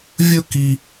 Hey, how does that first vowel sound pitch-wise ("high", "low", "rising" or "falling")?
high